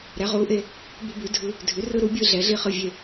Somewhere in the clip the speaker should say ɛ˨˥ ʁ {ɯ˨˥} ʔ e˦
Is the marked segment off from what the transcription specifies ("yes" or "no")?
yes